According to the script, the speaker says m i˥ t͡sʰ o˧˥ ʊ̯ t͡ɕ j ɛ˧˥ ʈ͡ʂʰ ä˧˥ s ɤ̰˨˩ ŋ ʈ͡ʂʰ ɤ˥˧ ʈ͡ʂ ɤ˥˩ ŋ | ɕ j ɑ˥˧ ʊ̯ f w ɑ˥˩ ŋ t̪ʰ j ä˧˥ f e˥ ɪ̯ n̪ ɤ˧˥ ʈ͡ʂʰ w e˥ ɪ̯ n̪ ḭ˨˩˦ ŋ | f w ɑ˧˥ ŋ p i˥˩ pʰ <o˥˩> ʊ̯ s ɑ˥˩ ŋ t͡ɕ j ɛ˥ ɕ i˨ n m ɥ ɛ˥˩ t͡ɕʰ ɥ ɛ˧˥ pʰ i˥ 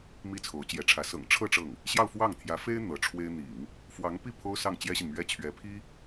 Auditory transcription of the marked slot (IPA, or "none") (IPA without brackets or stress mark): o˥